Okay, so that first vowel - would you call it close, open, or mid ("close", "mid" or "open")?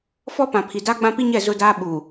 mid